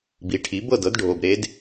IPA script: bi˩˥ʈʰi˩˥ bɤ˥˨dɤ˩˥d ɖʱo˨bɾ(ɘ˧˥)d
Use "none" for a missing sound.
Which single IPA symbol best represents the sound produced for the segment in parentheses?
e˧˥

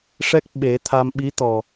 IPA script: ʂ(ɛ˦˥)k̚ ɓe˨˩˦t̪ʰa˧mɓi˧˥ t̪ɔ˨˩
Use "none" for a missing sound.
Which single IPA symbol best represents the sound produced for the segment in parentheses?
ɛ˦˥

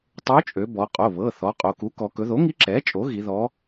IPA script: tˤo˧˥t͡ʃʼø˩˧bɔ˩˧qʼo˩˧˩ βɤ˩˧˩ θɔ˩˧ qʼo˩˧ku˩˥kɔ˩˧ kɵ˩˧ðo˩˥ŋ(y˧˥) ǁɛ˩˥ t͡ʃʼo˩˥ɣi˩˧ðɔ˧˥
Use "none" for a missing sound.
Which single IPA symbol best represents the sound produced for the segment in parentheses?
i˧˥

